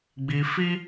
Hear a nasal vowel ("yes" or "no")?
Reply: no